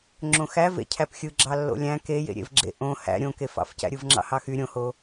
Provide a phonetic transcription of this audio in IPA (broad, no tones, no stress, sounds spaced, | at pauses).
ŋ͡ǁ õ x æ v ḛ cʰ æ p xʲ ɯ ɡ͡ǁ ɑ lː o̰ lʲ æ̃ k e j ḛ ɾʲ ḛ v ɡ͡ǁ ḛ ʔ õ h æ̰ ɾʲ õ k e f ɑ̰ f c æ̰ ɾʲ ɯ v ŋ͡ǁ ɑ̰ h ɑ x y ɾʲ õ h o